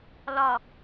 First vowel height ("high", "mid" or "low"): low